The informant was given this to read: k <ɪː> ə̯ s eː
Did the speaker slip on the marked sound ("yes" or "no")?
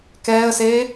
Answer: yes